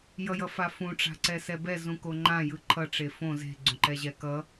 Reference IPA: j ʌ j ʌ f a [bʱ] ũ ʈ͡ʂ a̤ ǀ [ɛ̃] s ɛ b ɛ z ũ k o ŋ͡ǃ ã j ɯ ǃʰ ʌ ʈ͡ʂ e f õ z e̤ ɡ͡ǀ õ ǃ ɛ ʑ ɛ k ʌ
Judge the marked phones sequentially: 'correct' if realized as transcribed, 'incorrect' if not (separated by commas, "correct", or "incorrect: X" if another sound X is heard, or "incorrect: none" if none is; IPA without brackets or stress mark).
incorrect: f, incorrect: ɛ